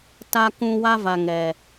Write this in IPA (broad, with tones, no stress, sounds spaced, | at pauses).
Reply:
t a˦ k ũ˦ w a˦ v a˨ ŋ ɛ˨